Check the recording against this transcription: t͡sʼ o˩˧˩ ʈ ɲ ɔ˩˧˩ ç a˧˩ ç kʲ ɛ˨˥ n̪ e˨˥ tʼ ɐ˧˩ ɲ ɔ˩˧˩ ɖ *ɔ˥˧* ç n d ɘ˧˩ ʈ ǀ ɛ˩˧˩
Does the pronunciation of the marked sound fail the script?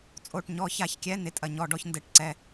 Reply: yes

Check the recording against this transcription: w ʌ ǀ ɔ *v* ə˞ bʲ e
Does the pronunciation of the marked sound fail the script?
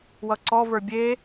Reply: no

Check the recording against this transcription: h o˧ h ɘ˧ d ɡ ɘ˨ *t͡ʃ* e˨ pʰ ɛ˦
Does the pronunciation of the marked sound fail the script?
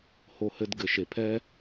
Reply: yes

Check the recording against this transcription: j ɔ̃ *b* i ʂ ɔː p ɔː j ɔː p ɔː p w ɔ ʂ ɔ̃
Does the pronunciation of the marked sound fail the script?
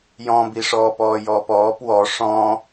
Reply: no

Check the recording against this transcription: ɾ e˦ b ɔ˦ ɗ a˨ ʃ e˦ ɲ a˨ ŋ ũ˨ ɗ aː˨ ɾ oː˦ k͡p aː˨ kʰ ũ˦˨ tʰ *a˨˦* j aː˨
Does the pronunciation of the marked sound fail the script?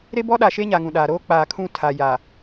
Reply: yes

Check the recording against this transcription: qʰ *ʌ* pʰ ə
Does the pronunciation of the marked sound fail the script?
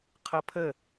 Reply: no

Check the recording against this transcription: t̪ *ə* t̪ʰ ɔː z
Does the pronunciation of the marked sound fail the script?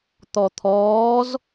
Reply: yes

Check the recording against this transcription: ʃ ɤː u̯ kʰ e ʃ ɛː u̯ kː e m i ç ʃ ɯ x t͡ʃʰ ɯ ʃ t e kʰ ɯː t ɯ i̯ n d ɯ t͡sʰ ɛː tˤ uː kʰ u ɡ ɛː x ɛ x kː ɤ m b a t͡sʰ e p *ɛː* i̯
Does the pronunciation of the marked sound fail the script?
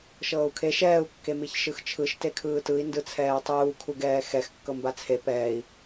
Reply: no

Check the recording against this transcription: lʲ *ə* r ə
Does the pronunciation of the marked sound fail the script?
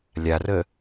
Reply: yes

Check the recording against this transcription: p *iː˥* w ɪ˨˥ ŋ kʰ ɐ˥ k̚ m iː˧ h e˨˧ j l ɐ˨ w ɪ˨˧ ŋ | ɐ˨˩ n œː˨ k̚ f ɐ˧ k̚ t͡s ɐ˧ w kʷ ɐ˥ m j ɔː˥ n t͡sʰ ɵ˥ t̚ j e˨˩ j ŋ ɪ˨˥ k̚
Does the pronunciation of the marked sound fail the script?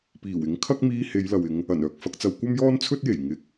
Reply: yes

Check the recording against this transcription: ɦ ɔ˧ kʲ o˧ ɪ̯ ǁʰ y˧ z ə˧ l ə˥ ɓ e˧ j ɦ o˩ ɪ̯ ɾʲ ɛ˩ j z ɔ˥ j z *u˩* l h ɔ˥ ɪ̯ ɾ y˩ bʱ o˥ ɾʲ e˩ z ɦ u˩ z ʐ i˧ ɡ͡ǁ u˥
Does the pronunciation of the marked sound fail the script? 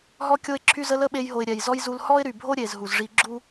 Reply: yes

